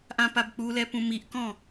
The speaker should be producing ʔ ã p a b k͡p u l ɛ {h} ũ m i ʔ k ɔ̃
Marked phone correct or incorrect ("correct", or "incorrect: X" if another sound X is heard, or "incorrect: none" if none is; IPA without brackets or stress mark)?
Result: incorrect: p